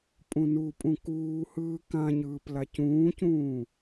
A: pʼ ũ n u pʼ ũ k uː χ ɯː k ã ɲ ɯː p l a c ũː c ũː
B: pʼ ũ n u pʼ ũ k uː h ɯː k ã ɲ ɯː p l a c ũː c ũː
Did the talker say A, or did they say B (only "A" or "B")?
B